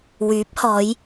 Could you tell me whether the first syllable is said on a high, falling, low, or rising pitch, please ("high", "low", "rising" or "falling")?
rising